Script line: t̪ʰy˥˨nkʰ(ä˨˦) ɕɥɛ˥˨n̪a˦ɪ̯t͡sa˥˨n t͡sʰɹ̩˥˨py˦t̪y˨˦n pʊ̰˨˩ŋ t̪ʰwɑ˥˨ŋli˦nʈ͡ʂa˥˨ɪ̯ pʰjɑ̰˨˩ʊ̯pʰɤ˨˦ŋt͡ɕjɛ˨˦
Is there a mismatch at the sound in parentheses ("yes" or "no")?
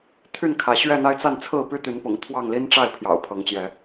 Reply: no